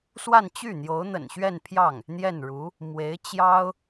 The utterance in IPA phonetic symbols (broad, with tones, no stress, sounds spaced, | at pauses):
s w a˥˧ n t͡ɕ y˥˩ n̪ j o˧˥ ʊ̯ n̪ ə̰˨˩ n ɕ ɥ ɛ˥˧ n pʰ j ɑ˥˩ ŋ | n̪ j ɛ˥˩ n ɻ u˧˥ | m w e˧˥ ɪ̯ t͡ɕ j ɑ˥ ʊ̯